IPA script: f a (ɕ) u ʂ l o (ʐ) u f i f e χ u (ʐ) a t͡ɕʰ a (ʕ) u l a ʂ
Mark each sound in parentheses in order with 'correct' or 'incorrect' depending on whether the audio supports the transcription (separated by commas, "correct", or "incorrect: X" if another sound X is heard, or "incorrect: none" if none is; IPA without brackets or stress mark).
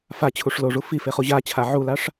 incorrect: t͡ɕʰ, correct, incorrect: ʑ, correct